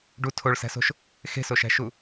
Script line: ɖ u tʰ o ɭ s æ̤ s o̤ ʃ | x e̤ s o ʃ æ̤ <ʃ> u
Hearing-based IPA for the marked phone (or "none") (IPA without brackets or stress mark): ʃ